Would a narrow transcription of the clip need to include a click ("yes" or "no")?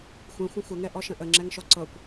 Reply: yes